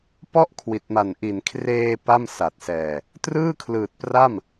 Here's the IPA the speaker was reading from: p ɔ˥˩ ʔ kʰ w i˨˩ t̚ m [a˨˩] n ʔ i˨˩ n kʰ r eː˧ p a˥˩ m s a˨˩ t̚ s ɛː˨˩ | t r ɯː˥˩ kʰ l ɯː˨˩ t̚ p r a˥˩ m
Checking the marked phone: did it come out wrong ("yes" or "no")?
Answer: no